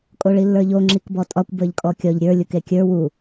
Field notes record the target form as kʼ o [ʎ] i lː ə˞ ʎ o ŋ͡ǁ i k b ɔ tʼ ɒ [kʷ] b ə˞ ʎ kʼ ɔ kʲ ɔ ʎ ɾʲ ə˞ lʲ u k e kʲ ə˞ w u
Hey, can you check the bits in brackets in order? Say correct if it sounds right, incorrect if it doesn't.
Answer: incorrect: ɭ, correct

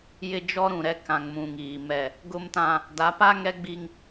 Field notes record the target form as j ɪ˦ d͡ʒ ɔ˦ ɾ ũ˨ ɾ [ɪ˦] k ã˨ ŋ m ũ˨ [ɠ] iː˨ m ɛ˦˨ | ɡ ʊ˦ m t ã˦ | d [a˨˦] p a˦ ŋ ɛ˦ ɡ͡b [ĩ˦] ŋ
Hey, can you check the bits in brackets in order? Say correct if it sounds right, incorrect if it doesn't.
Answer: incorrect: ɛ˦, incorrect: ŋ, correct, incorrect: i˦

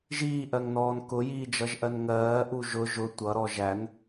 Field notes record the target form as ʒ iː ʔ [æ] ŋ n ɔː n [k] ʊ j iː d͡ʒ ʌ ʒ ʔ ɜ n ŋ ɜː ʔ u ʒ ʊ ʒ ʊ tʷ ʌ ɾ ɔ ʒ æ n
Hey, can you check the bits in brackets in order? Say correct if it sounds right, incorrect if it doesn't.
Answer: incorrect: ɜ, correct

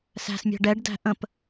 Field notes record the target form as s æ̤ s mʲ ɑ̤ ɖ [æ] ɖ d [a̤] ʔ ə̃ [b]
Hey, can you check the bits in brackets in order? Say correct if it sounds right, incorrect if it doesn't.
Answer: incorrect: ɛ, incorrect: æ̤, incorrect: p

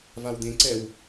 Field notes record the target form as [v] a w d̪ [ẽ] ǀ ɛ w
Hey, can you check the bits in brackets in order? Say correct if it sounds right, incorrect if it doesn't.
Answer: correct, correct

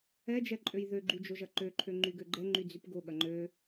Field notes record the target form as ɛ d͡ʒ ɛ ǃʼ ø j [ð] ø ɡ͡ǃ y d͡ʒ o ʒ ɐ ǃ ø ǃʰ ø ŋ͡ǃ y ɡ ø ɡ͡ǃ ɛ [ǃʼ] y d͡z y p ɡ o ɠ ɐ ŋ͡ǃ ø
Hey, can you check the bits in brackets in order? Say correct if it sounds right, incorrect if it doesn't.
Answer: correct, incorrect: ŋ͡ǃ

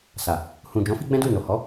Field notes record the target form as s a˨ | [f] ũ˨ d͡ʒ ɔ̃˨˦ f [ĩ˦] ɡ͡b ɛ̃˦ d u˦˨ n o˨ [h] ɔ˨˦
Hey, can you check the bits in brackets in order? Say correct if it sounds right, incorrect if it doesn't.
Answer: incorrect: h, incorrect: i˦, correct

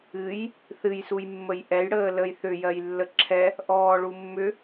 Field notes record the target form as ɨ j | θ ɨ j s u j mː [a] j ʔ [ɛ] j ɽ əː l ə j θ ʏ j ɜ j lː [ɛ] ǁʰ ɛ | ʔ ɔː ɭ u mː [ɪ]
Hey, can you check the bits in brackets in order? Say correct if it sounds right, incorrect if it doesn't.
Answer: incorrect: ə, correct, incorrect: ə, incorrect: ʏ

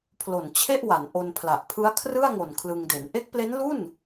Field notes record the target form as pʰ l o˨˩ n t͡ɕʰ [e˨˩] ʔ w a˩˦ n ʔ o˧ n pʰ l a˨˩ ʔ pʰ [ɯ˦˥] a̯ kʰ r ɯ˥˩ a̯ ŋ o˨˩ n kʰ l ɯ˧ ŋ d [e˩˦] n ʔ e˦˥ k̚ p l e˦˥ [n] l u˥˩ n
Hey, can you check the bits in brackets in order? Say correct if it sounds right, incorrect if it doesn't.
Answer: incorrect: e˥˩, correct, correct, correct

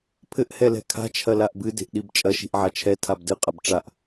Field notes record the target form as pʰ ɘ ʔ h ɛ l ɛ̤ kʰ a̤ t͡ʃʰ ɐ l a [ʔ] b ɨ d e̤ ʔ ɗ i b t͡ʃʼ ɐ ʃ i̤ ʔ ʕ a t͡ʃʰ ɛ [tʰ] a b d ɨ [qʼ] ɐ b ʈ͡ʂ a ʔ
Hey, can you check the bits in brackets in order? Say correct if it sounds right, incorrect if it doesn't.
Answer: correct, correct, correct

